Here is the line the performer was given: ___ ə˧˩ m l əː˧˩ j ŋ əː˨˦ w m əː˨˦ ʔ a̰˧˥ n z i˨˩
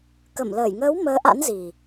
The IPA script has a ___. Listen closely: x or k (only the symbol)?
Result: k